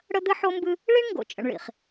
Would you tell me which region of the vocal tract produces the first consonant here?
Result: retroflex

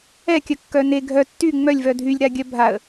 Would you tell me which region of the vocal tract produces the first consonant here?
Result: velum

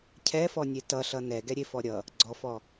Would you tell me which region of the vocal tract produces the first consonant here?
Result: palate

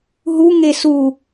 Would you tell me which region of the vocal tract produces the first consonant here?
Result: throat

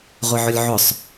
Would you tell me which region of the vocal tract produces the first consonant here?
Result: uvula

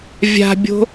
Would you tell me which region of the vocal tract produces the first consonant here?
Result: lips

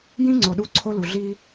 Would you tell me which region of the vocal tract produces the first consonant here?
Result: palate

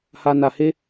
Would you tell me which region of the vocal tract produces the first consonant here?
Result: throat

